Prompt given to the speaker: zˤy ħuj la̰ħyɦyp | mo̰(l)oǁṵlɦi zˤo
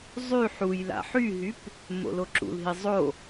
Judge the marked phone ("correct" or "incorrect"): correct